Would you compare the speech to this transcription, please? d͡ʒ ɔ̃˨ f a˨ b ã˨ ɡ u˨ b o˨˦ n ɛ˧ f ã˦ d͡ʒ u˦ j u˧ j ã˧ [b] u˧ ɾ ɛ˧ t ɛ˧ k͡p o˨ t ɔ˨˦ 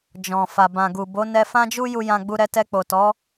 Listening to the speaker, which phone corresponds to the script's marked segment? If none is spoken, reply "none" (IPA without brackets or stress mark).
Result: ɡ͡b